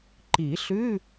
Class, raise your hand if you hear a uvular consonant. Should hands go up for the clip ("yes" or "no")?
no